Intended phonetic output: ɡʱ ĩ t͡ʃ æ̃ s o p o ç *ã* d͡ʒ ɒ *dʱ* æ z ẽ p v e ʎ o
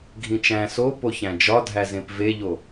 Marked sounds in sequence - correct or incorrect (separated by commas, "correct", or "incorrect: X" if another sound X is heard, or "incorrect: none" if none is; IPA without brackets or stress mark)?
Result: incorrect: æ̃, correct